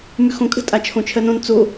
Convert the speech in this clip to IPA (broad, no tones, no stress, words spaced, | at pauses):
mʉxõkʼə̤ tʼat͡ʃʰõt͡ʃʰɜnõn t͡so